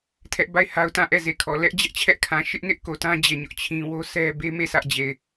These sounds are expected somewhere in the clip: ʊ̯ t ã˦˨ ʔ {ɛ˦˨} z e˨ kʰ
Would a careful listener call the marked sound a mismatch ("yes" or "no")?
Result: no